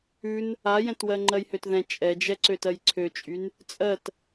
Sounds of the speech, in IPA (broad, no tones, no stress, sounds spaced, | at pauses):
ʉ n | a j ɛ̃ t w ɜ ŋ͡ǃ ɜ j h ø t ð ɛ̃ t͡ʃʼ ɛ d͡ʒ ɛ ǀ ø t ɜ j ǀʰ ø t͡ʃʼ y n | t͡sʼ ɜ t